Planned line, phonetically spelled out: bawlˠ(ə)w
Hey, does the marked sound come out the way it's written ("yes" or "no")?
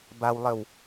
yes